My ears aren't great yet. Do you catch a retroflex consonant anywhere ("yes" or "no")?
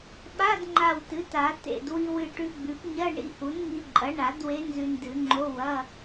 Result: yes